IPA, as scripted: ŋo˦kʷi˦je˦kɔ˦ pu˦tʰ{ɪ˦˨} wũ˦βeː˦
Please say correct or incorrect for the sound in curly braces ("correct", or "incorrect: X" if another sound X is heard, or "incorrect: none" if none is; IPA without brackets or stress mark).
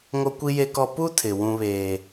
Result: incorrect: ɪ˨